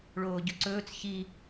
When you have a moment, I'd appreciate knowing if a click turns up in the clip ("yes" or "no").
yes